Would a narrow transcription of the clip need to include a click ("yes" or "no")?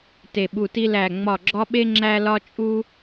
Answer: yes